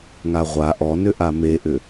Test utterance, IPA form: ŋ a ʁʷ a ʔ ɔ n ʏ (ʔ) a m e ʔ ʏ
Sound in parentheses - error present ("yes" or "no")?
no